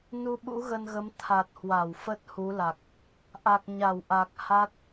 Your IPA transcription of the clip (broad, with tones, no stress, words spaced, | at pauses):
nu˧ɓṵ˧˥ɣə˧nɣə˨˦m t̪ʰa˨˩t̚hwa˧˩w fə˦˥t̚hu˨˦la˨˩k̚ | ʔa˨˩k̚ɲa˧˩wʔa˨˩k̚ ha˦˥t̚